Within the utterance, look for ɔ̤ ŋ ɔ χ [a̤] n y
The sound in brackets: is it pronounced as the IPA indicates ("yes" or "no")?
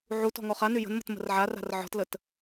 no